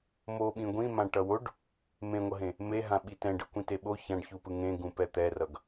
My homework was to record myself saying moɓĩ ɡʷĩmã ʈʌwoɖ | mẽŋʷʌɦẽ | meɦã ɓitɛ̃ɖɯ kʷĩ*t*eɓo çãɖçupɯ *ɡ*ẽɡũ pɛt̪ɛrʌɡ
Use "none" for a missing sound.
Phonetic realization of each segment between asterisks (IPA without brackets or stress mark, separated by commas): t, ŋ